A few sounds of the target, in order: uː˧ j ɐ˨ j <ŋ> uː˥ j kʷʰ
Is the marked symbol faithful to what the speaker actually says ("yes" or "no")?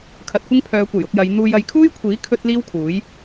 no